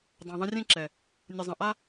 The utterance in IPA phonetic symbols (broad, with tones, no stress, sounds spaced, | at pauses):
dˤ ã˨ ðˤ ə̃˧ rʲ ẽ˦ ǁ ɛ˨ | nʲ ə˨ zˤ ə̃˨ ʔ a˦